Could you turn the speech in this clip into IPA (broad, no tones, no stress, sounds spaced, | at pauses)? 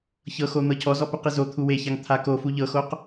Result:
ç ɤ x o n̪ ɤ cʰ ɔ z ɔ p u q i z o t̪ʰ u w e ç a ŋ t̪ʰ a k o f u ʎ ɤ x o q